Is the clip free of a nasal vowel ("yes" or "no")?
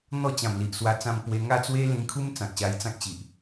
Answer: no